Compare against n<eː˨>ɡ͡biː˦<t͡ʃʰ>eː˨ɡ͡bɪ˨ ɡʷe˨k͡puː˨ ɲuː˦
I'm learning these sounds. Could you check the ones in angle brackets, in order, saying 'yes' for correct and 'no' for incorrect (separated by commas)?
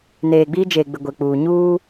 yes, no